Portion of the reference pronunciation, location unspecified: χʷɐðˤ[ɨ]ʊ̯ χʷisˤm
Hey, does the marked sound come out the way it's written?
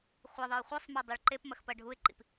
yes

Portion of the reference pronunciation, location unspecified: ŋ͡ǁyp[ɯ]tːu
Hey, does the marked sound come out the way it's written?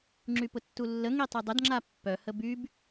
no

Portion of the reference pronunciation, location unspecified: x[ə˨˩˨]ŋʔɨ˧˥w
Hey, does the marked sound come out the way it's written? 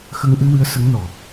no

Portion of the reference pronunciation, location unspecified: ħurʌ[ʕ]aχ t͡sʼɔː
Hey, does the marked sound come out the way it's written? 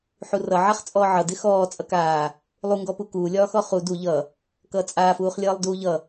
yes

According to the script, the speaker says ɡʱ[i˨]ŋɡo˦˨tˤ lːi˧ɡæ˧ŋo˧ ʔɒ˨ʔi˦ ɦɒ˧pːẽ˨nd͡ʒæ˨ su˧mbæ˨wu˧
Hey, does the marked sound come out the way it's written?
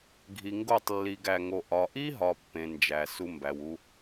yes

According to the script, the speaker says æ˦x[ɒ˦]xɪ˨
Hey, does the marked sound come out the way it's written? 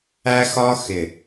yes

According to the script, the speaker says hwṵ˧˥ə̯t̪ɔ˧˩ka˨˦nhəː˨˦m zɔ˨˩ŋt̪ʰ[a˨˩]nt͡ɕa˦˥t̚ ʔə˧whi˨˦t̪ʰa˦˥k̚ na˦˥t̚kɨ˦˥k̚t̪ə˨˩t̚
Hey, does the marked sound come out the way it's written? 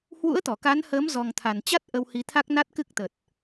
yes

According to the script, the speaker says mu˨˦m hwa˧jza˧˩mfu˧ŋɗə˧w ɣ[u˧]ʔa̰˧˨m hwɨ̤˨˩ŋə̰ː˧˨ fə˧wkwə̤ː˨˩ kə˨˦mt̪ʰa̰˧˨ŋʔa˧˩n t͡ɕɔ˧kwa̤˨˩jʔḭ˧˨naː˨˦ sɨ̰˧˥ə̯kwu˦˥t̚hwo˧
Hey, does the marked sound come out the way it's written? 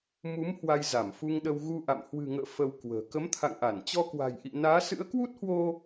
yes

